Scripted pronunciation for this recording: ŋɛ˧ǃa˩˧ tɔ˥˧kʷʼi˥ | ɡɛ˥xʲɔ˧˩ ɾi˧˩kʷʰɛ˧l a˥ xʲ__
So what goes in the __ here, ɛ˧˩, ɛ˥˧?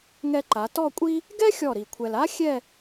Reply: ɛ˥˧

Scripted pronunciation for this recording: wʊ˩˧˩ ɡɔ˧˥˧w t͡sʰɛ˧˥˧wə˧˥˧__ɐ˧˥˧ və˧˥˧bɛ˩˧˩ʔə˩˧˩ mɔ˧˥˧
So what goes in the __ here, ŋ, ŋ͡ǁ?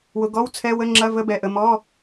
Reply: ŋ͡ǁ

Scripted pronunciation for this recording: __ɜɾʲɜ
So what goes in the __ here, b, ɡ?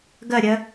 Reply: ɡ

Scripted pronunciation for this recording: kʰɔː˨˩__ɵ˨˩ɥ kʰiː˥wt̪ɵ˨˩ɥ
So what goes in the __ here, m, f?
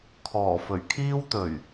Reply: f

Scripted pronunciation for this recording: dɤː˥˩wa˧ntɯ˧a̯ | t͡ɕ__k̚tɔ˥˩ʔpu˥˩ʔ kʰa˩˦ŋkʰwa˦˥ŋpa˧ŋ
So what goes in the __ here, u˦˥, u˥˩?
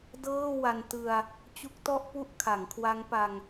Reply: u˦˥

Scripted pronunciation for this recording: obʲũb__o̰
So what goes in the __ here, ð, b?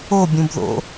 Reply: ð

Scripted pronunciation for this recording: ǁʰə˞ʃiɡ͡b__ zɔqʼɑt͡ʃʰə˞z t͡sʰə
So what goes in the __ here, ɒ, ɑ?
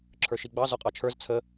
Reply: ɑ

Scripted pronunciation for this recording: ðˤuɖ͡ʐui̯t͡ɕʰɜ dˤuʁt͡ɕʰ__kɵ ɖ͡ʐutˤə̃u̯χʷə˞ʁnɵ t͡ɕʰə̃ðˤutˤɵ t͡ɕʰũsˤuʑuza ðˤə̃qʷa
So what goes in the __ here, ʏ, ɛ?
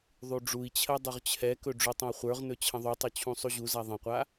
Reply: ɛ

